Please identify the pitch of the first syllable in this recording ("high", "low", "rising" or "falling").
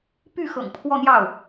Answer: falling